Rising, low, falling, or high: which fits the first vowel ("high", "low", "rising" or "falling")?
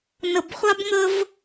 low